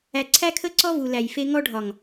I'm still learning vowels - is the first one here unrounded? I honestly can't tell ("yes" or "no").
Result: yes